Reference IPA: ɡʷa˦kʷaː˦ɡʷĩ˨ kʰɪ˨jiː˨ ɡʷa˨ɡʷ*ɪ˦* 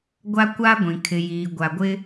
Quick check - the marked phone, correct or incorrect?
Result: correct